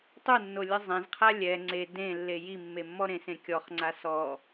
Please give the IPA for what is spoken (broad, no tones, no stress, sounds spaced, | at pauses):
tˤ u nː o lʲ ɯ zˤ ẽ z qʰ a lʲ ɛ ŋ͡ǀ e d ẽ lː e j i mː e mː ɔ ɾ ẽ s ẽ kʲ ɔ χ ŋ͡ǀ a s ɔ